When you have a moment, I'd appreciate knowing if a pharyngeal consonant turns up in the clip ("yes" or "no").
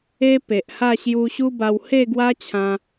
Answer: no